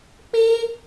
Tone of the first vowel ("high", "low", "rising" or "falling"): high